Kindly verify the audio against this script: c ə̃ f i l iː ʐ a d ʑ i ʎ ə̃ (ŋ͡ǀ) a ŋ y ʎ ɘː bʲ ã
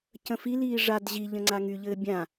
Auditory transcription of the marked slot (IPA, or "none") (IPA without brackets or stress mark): ŋ͡ǀ